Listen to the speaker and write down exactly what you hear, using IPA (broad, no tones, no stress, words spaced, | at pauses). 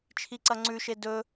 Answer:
t͡ʃʰiǀɐŋ͡ǀʉʃe dɵ